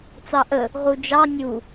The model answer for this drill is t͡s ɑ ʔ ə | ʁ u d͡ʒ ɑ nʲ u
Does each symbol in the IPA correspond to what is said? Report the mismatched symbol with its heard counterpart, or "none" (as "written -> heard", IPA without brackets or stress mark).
none